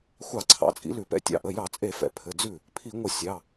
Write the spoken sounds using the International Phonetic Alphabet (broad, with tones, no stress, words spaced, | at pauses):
xʷɑ˧˩˧ǀʰɑ̰˩˧˩t͡sʼḭ˨˦ lʉ˧˩˧pɛ̰˥˩tʲɑ̰˥˩ ʔə˩˧˩jɑ˧˩˧t͡sʼe˧˩˧ fɛ̰˩˧˩pʰɘ˩˧˩ d͡zʉ˥˩ | pʰi˧˩˧ŋʷə˧˩˧ sʲɑ˩˧˩